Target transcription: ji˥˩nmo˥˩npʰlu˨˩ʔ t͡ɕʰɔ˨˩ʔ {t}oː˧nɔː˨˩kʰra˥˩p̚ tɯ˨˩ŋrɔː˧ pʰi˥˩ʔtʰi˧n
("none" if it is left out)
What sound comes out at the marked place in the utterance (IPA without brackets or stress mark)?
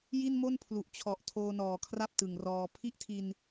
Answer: tʰ